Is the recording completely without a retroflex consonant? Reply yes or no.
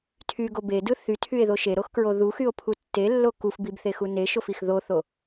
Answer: yes